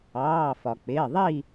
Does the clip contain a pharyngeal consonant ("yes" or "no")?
no